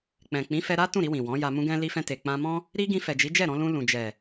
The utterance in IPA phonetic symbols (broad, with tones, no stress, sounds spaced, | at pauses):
k͡p ɛ̃˨ k͡p ĩ˨˦ f ɛ˧ ɾ a˦ t ũ˦˨ ɾ i˧ w ĩ˨ w ɔ̃˨˦ j a˧ m ũ˧ ɡ ɛ̃˧ l i˧ f ɛ̃˧ t e˨ k͡p ã˧ m ɔ̃˦ | ɾ i˦ ɡ ĩ˧ f ɛ˨ d͡ʒ i˨˦ d͡ʒ ɛ˦˨ ɾ ɔ̃˧ l ũ˧ l ũ˨ d͡ʒ ɛ˨